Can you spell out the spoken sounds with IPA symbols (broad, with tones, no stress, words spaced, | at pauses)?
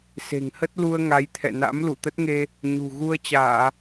se̤˨˩ŋhə˦˥t̚lu˧ə̯ ŋa˨˦jt̪ʰɛ̰˧˨na̰˧˥m lu˧˩t̪ə˦˥t̚ŋe˧ | ɲṳ˨˩ ɣu˧ə̯t͡ɕaː˧˩˨